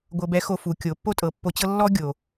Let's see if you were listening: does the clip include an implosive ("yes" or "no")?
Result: no